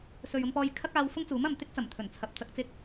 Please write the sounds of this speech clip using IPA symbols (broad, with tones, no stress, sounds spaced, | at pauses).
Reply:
s ɵ˨ ɥ ʊ˧ ŋ p ɔː˧ j kʰ ɐ˥ k̚ aː˧ w f ʊ˥ ŋ t͡s uː˨˥ m ɐ˨ m t̪ ɪ˥ k̚ t͡s ɐ˨˩ m t̪ʰ ɵ˨˩ n t͡sʰ ɐ˨ p̚ t͡s ɐ˧ k̚ t͡s ɪ˥ k̚